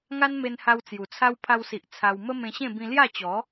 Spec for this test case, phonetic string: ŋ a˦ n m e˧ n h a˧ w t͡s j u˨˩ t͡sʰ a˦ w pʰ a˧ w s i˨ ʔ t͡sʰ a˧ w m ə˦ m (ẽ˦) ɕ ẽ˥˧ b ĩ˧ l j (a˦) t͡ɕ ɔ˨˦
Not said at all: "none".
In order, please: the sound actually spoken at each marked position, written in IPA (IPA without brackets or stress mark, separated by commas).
ẽ˧, a˥˧